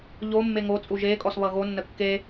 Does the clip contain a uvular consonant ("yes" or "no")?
no